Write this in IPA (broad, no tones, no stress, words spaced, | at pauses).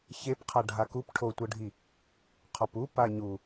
çepqʰa ɖʱakup ʈʰotʷɤɖʱi | qʰɔpu paɲu